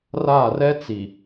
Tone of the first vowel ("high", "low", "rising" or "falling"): falling